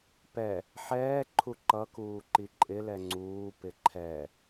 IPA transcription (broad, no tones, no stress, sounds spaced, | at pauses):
p ɛ | ħ ɛː ǃʰ u ǃ ʌ k uː ǃ i ǃʼ ɪ l ɛ ŋ͡ǀ uː p ɪ ǃʰ ɛ